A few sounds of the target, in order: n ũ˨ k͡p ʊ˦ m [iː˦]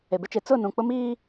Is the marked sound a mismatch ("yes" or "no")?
no